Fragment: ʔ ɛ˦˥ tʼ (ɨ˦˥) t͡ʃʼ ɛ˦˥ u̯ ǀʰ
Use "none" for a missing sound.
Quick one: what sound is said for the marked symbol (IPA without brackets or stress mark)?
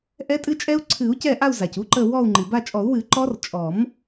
ɨ˦˥